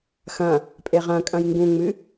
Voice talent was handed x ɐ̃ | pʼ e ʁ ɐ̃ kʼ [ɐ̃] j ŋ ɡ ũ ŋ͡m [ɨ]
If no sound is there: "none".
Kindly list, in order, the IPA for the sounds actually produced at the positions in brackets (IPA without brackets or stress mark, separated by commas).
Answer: ɐ̃, ɨ